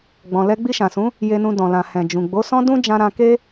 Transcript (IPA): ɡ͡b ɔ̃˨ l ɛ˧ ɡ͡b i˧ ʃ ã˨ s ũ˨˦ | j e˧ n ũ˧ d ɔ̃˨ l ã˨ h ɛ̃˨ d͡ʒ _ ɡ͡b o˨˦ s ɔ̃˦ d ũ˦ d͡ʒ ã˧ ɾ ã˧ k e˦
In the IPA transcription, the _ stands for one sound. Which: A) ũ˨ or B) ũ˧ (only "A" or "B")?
A